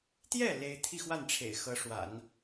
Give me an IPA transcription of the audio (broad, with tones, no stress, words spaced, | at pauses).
t̪jɛ˥˩ le˥ɪ̯ t̪ʰi˥˧xwa˥˩nʈ͡ʂʰḛ˨˩ɪ̯ xɤ˧˥ ʂwa̰˨˩˦n